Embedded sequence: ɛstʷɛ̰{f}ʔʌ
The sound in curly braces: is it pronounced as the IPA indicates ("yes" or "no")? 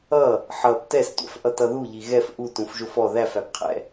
yes